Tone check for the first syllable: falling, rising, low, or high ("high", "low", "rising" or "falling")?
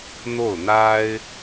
falling